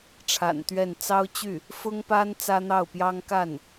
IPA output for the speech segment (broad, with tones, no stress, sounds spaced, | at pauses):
ʈ͡ʂʰ a̰˨˩ n t̪ ɥ ɛ˥˩ n t͡s ɑ˥ ʊ̯ t͡ɕ y˥˩ | f ʊ˥ ŋ p a˥ n t͡s ä˥ n̪ ɑ˥˩ ʊ̯ p j ɑ˥ ŋ k a˥˩ n